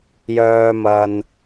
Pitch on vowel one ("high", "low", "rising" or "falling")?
low